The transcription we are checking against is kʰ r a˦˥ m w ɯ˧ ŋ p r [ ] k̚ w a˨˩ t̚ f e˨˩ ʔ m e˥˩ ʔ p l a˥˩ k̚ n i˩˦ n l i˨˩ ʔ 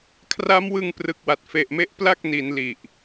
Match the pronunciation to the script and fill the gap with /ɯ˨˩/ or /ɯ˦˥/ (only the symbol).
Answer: ɯ˨˩